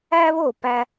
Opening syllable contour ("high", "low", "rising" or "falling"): high